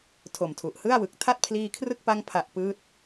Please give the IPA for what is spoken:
tʰo˨˩mtʰu˨˩ʔhɯ˥˩a̯wɯ˨˩k̚ tʰa˥˩t̚pʰliː˧kʰrɯ˥˩k̚pa˦˥ŋ pʰa˦˥ʔ pɯː˦˥t̚

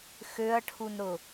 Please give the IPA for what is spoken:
xøɐ̯ʈʰunɾʊ

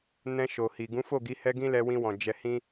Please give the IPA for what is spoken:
nɛ̃˧ʃo˨hi˨ ɡũ˨˦fo˦˨ɡi˨˦ hɛ˦ɡĩ˦ lɛ˧wĩ˧wɔ̃˨ d͡ʒɛ˧hĩ˦

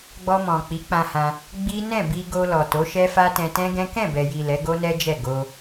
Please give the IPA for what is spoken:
ɡ͡bɔ˧mɔ̃˨ k͡pi˨˦k͡pã˧hã˧ | ɡ͡bi˦ nɛ̃˦˨bi˧ɡo˧ lɔ˨to˨˦ʃɛ˦fa˦ tɛ̃˧tɛ̃˦ɡɛ̃˦ kɛ̃˦˨bɛ˨ji˨ lɛ˨˦ɡo˦nɛ˦d͡ʒɛ˦˨ ɡo˧

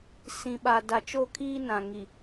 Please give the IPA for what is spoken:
sĩ˨ɓa˨ da˨t͡ʃo˦˨kʰiː˦ nã˨ ŋi˨

